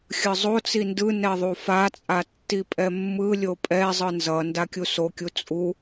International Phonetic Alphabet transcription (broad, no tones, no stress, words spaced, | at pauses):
xʲɯzˤot͡si ndɯ nɛðˤufat͡sʼa tːipʼɛmːɯlʲo pʼɛ zˤɯnzʌnda kʲusokʲu t͡sʼu